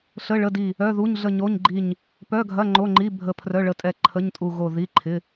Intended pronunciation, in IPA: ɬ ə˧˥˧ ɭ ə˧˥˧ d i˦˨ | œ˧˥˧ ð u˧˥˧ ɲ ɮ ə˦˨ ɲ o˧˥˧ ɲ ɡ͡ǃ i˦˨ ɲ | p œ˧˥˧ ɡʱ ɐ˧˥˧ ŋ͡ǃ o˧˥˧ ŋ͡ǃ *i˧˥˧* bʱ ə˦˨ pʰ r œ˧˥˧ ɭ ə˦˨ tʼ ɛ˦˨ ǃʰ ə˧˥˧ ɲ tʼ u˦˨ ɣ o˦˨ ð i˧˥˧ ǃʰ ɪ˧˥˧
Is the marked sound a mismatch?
no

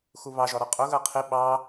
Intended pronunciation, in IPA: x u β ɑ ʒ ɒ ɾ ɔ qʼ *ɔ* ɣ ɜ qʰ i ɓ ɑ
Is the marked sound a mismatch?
yes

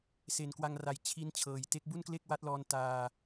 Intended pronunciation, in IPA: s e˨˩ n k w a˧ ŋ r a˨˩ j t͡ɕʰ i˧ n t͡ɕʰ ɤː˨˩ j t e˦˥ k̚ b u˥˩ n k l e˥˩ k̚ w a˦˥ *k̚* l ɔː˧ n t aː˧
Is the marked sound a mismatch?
yes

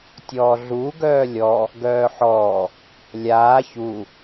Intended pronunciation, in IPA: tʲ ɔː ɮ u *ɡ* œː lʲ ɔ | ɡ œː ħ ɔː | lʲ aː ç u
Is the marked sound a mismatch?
no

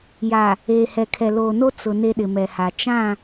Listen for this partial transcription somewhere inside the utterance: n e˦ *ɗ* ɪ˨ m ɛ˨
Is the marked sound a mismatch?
no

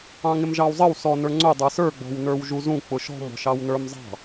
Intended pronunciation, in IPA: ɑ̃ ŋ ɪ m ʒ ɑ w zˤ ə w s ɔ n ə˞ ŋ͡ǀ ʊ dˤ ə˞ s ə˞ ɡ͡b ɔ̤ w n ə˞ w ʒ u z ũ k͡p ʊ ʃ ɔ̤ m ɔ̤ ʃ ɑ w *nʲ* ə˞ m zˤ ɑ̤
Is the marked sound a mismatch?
yes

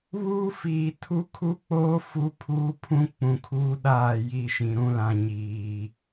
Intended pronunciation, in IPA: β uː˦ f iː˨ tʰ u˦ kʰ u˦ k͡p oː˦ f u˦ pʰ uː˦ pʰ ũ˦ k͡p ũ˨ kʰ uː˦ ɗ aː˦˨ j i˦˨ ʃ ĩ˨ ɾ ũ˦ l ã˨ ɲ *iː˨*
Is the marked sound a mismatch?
no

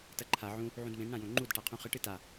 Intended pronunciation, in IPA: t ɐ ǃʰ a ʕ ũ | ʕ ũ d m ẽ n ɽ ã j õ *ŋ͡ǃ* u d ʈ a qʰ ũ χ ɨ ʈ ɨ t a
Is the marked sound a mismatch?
no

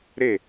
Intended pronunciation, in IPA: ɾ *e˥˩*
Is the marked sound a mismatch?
no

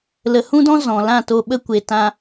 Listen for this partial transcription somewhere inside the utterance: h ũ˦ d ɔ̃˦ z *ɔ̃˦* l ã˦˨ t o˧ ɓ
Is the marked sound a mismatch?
yes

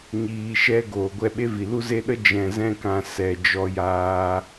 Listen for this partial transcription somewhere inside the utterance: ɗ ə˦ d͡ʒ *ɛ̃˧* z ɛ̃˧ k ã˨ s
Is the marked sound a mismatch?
yes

